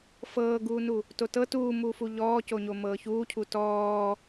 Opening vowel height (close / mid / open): mid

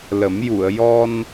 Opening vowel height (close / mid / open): mid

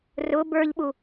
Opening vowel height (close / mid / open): close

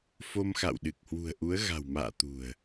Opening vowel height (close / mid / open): mid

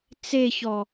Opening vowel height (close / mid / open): mid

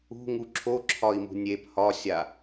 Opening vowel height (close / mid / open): close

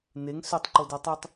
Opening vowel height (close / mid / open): mid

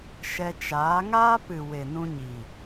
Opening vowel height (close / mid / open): mid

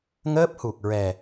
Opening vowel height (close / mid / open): mid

